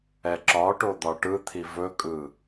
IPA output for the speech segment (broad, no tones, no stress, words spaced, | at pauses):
ɛǁɒʈo d̪ɒʈɯt̪ʰi vɵkʼɯ